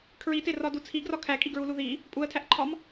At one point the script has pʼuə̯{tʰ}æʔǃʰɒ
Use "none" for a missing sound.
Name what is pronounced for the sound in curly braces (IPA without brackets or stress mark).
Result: tʰ